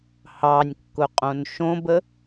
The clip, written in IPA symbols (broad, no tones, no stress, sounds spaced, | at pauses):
h ɑ nʲ kː ʊ qʼ õ n ʃ õ b ə